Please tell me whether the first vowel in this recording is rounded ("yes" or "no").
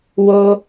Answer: yes